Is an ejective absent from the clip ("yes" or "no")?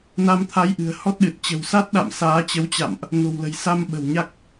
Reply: yes